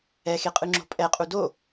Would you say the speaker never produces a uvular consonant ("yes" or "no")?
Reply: no